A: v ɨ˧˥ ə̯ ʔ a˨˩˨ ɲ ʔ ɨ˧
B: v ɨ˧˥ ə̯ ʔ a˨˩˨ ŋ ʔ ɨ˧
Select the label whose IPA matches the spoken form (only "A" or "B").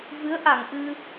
B